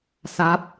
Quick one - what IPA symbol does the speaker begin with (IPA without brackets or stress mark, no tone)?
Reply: s